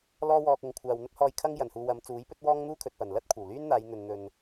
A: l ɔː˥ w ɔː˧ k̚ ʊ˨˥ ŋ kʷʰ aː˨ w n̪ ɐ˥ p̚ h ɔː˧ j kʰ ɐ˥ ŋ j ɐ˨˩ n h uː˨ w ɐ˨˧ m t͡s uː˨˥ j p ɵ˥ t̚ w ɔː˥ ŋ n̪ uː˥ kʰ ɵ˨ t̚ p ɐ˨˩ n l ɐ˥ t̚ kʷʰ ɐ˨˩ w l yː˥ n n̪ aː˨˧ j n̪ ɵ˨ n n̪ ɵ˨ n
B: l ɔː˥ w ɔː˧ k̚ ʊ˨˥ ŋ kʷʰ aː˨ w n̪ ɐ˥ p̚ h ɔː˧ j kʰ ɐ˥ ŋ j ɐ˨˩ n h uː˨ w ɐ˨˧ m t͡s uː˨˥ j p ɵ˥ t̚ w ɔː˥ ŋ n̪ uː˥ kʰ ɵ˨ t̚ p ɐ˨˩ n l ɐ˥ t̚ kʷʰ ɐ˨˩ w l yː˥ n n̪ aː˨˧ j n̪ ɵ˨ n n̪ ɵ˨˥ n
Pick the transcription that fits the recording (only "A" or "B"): A